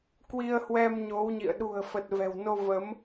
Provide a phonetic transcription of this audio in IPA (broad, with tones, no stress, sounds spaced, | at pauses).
k w i˧ ə̯ h w ɛ˧ m ɲ o˨˦ w ɲ ḭ˧˨ ə̯ ɗ ṳ˨˩ ə̯ f ə˨˩ t̚ v ɛ̤˨˩ w n o˧ v ə˨˦ m